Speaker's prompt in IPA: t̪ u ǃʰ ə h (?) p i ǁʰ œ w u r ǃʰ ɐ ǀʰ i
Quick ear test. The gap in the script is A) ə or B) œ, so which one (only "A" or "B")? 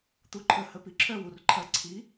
A